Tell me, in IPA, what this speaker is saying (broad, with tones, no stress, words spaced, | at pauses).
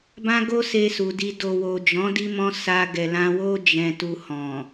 bã˦ɡo˦se˧ su˨di˧ do˨wo˨d͡ʒɔ̃˨˦ di˦mɔ̃˦ sa˧ ɡɛ˨lã˧wo˦ d͡ʒɛ̃˧tu˧hɔ̃˨